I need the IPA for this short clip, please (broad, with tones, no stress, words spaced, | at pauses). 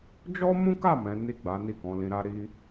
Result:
d͡ʒɔ˦mũ˦ka˦˨ mɛ̃˨˦ni˦˨ɡ͡ba˨˦ni˦˨ kɔ̃˨˦lĩ˧ɾa˦ ɾi˦